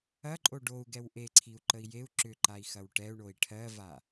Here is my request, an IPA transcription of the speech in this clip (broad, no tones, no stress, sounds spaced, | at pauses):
ɐ ǃʼ o ɖ o u̯ ɡ ɛ w ʔ e ǀʰ i u̯ ǃ ə i̯ j e u̯ ǁ ʏ ǃ a i̯ x ɐ w ʈ ɛ u̯ ɳ o i̯ ʈʰ ɜ v a